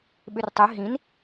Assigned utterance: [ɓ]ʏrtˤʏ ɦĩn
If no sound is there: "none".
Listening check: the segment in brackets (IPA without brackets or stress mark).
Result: ɓ